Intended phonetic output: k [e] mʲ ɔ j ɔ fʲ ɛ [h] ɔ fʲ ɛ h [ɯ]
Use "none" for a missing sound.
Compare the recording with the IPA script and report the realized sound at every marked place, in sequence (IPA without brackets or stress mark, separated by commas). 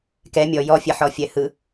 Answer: ɛ, ħ, ɯ